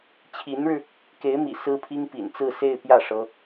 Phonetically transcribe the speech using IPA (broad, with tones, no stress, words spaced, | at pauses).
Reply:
t͡ɕʰi˧˥nɻɻ̩˧ | ke˧˥ɪ̯mḭ˨˩ sɹ̩˥pʰi˥ŋpḭ˨˩n t͡sɹ̩˥˧se˥˧ɪ̯ pjä˥˩ ʂɤ˥